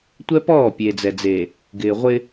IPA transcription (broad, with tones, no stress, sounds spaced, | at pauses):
tʷ ɛ˦ p ɔː˦˨ pʲ e˨ d͡z ɛ˨ d͡z e˨ | ɡ ɪː˨ ʁʷ ɪ˦